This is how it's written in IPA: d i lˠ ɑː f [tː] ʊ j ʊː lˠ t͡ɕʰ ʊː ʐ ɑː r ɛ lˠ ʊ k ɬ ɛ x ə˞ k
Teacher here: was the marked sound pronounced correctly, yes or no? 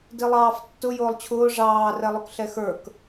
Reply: yes